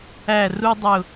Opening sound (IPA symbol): æ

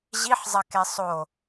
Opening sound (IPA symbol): ʑ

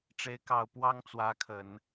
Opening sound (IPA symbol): ʈ͡ʂ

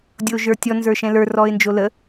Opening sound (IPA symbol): dʲ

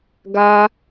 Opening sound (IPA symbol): ɡ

